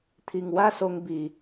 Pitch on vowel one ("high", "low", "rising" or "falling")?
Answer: low